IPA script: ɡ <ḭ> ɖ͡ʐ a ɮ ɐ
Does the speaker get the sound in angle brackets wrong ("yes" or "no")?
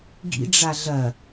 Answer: no